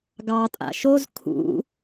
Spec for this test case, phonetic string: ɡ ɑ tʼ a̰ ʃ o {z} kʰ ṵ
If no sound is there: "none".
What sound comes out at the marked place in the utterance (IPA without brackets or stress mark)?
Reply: z